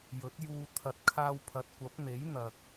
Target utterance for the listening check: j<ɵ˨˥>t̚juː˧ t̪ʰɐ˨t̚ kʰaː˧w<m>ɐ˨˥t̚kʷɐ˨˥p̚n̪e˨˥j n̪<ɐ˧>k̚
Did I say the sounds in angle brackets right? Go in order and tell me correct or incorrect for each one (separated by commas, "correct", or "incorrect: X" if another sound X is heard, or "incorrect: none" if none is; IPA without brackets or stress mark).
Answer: correct, incorrect: pʰ, incorrect: ɐ˨